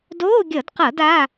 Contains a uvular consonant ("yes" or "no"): yes